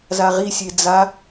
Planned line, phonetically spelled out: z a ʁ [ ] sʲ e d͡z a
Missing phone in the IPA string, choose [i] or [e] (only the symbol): i